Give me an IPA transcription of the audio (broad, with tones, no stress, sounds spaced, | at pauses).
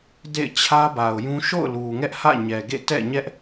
d ḛ˦˨ ɪ̯ t͡ɕʰ ä˦ b a˨ ʊ̯ j ũ˦ ʃ o̰˦˨ ʊ̯ l u˨ ŋ ɛ˦ ʔ h ä̰˦˨ ɲ ɛ˨ ɡ ḛ˦˨ t ɛ̰˦˨ ɲ ɛ˦ ʔ